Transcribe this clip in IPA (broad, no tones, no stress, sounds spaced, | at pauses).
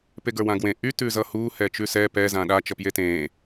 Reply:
p e ɡ ə˞ w ã ɡ w ẽ ʔ y t ʉ z ʌ h uː h ɛ t͡ʃ ʉ s ɛ p ɛ z ã ɗ a t͡ʃ ʌ p j e t ẽː